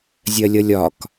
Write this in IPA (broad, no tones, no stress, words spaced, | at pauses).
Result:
zʲɜlʲʌlʲɒk